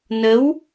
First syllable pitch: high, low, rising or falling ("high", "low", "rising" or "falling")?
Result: rising